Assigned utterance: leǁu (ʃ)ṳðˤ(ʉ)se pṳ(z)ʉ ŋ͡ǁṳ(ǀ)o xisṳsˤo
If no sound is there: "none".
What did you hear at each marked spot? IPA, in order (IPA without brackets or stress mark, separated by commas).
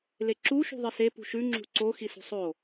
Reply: ʃ, ɨ, ʃ, ǀ